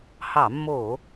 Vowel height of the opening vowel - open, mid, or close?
open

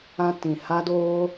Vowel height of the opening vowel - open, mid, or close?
open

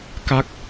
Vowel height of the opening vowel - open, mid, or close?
open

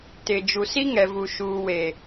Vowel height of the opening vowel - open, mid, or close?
close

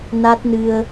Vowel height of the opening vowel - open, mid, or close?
open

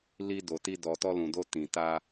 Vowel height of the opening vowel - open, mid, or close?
close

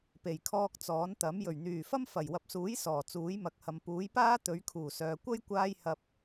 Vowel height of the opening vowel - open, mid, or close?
mid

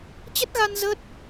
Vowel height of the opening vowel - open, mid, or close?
mid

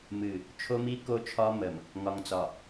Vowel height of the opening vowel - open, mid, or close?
close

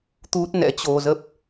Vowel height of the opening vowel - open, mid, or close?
close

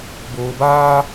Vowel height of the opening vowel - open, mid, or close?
mid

